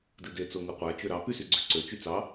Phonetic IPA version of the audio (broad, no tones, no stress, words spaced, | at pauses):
dɯde t͡soŋɯqʷæ t͡ʃøɾɑ pys yɡ͡ǀyǀø t͡ʃyt͡sɑ